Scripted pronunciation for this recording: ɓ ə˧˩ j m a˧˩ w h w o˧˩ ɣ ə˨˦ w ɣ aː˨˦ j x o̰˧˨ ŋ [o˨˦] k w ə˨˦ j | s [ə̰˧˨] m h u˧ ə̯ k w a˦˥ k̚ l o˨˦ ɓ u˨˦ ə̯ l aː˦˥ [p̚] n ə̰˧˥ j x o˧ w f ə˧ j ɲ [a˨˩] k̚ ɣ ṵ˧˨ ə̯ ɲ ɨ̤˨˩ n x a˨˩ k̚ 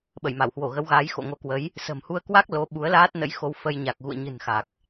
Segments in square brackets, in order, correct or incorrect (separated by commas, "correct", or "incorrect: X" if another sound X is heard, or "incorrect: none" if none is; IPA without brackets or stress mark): correct, incorrect: ə̤˨˩, incorrect: t̚, correct